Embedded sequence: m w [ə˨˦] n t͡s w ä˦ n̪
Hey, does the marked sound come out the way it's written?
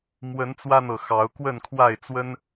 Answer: yes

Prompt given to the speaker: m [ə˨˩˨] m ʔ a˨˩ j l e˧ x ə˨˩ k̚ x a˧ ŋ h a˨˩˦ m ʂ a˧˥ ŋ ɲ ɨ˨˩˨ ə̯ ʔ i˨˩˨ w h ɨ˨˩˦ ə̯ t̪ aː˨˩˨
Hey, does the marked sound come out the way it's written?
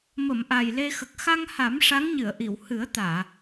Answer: yes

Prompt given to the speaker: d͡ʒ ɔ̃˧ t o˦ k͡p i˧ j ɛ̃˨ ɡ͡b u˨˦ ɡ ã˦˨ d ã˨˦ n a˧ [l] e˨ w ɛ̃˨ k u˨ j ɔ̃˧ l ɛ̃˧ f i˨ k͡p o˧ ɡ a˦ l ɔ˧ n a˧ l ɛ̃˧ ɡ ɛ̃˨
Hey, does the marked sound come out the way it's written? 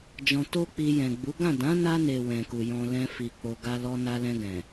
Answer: no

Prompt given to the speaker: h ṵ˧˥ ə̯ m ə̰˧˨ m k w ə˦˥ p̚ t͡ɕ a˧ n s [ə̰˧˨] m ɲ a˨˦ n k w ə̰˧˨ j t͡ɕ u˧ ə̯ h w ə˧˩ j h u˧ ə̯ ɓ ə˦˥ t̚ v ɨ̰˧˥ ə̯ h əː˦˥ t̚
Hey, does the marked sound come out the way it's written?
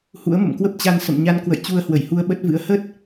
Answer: yes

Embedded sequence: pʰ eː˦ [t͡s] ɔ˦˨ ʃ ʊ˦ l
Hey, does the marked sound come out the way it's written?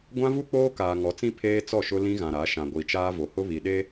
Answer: yes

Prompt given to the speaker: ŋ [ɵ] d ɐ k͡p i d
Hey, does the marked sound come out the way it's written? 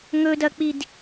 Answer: yes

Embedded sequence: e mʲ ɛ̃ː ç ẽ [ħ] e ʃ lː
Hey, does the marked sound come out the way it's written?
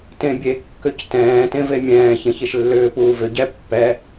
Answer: no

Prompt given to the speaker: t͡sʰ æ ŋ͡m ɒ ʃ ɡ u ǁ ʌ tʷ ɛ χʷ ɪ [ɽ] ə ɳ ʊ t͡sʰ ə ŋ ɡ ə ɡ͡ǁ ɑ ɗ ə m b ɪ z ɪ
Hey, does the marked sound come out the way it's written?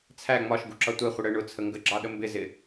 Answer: yes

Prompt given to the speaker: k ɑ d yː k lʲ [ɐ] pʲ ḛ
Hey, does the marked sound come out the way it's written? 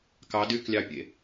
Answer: no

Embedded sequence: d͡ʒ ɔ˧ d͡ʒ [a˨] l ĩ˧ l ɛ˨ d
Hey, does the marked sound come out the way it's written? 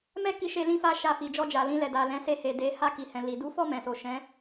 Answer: yes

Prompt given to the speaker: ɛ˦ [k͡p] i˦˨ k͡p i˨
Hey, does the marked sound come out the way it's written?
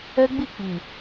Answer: no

